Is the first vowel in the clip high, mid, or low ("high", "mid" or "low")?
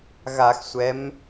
low